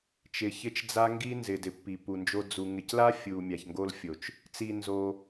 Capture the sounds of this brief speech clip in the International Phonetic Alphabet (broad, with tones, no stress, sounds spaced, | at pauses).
t͡ʃ ɪ˧ ç ɪ˦ t͡ʃ d͡z a˦ ŋ ɡ i˦ n z ɪ˨ d ɪ˨ pː i˨ p u˨ n d͡ʒ o˧ d͡z u˨ ŋ ɪ˨ c l a˦ fʲ u˨ mʲ a˨ ç ŋ ɡ o˧ l fʲ o˨ t͡ʃ | t͡s i˧ n z o˧